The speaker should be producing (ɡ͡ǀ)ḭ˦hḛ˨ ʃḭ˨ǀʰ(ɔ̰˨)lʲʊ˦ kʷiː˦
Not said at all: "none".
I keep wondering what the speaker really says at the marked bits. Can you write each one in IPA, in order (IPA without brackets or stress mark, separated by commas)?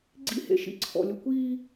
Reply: ɡ͡ǀ, ɔ̰˨